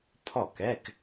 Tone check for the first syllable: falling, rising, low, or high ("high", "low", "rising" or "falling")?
falling